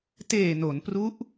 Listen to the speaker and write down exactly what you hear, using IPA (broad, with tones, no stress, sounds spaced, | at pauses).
t eː˨˩ n o˩˦ n p r u˦˥ ʔ